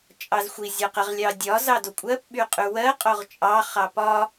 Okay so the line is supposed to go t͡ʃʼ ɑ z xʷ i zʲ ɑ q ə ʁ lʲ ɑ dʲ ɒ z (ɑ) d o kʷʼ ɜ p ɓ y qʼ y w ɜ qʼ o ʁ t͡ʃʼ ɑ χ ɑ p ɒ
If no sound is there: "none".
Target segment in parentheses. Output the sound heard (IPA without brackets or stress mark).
ɑ